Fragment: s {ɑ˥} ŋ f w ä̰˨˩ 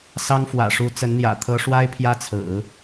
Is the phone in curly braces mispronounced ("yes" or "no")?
no